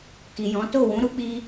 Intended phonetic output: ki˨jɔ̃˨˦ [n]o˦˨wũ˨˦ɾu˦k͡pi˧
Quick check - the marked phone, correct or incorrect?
incorrect